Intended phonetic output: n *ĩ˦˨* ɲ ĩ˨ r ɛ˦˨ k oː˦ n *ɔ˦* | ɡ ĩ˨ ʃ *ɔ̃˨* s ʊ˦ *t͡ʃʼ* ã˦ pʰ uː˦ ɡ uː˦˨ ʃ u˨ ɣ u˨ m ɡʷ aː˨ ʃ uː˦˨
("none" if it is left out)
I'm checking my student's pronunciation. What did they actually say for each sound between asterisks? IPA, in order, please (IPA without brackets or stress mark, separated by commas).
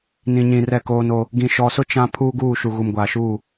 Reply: ĩ˨, o˦, ɔ˨, t͡ʃ